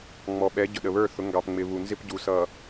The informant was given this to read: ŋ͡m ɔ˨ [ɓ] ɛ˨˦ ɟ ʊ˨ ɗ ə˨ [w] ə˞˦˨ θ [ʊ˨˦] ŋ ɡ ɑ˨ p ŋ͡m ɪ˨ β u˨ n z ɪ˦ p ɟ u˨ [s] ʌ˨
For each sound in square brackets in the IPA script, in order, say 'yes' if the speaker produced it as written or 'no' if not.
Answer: yes, no, yes, yes

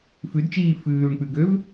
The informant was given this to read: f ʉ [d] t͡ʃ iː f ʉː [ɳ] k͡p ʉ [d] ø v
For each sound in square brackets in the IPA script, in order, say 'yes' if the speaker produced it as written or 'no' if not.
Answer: yes, yes, no

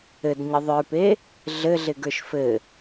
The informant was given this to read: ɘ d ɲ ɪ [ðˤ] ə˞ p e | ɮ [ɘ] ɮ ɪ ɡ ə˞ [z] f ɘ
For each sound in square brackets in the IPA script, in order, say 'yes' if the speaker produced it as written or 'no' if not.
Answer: yes, yes, no

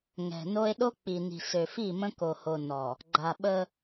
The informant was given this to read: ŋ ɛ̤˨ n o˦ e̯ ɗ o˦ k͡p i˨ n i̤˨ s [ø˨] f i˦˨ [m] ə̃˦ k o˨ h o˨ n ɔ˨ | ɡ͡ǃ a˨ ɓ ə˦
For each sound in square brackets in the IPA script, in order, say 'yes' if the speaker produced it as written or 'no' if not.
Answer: yes, yes

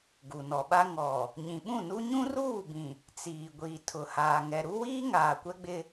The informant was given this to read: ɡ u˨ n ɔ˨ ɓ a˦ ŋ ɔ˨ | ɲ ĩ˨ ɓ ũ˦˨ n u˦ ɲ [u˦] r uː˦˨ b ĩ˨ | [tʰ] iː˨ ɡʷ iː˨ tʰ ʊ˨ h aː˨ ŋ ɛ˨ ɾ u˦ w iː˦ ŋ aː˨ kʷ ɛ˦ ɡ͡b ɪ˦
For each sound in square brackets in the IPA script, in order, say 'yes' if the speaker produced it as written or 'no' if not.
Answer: no, no

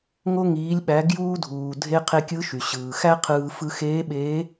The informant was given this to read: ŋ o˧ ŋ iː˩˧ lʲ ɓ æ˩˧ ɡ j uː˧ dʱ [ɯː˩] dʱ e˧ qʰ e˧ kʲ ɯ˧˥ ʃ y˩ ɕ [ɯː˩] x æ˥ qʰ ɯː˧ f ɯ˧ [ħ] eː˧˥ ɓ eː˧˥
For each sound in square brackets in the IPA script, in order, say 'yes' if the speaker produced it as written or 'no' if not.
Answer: no, yes, no

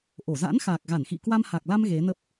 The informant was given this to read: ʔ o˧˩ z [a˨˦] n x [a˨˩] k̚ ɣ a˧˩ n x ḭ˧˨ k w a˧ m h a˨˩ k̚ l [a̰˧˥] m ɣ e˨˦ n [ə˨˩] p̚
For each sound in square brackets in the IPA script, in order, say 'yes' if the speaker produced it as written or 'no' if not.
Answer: no, yes, no, no

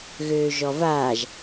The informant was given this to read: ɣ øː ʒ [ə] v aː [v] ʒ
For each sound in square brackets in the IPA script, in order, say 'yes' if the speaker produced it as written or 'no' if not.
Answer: no, no

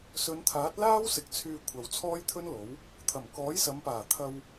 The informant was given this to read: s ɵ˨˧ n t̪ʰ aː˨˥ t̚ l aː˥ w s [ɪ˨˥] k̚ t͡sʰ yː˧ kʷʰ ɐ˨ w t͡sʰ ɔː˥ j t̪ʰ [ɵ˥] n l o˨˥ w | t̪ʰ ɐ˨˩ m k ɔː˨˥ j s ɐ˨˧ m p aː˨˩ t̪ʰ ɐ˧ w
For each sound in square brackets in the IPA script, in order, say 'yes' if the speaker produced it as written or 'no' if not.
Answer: yes, yes

